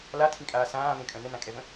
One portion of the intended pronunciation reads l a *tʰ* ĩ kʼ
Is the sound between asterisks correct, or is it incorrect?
correct